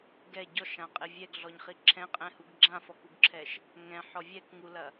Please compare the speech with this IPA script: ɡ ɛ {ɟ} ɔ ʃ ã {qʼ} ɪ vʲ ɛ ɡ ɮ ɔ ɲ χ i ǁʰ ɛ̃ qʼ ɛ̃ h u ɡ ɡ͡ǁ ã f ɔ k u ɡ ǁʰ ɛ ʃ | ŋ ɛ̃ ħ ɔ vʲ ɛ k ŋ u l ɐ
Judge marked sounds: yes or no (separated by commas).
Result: yes, yes